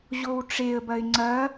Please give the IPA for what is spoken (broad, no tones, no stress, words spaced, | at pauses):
ʑowʈ͡ʂeə̯bɐɪ̯ ŋ͡ǀɐ